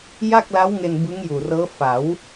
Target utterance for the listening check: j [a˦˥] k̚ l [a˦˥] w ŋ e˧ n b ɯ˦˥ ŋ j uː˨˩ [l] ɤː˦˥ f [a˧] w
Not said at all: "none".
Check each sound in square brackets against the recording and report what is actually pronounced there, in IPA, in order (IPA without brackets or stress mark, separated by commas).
a˥˩, a˦˥, r, a˩˦